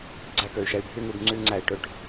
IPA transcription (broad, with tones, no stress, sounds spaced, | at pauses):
ɡ͡ǀ æ˦ k ø˨ y̯ ʃ ɛ˧ y̯ bʱ y˦ ŋ ʉ˧ b ŋ͡ǀ y˦ ŋ͡ǀ æ˧ i̯ ʈ ø˧ ʈ